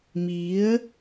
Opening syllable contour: rising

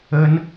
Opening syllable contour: high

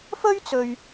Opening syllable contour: high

